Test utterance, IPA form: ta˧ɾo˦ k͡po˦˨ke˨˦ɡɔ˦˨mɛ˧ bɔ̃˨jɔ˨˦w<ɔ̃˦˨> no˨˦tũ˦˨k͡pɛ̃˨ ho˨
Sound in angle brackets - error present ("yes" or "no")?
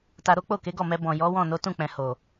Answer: no